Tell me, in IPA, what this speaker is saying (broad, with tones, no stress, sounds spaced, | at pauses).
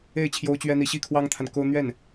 e˥˩ ɪ̯ t͡ɕʰ j o˥ ʊ̯ t͡ɕ ɥ ɛ˥ n̪ i˧˥ ɕ i˥˩ kʰ w ɑ˥ ŋ t̪ʰ a˨ n k o˥ ʊ̯ n̪ ɥ ɛ˥˩ n